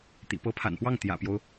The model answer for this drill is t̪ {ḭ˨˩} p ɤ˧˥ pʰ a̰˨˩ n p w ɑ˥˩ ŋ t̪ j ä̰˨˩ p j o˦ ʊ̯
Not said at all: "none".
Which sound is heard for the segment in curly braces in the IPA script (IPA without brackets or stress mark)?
ḭ˨˩